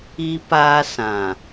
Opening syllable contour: high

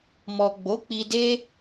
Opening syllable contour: low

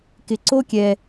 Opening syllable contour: low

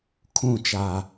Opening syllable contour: falling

